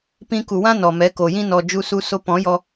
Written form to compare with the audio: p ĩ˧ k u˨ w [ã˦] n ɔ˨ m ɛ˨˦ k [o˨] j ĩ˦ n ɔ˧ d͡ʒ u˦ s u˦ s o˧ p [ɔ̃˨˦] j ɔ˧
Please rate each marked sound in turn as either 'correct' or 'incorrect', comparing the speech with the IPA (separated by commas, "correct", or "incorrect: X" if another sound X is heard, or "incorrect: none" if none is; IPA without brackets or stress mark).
correct, correct, correct